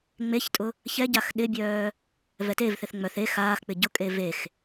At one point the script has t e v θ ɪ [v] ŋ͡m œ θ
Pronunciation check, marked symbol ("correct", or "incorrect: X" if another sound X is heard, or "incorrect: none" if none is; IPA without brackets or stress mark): incorrect: θ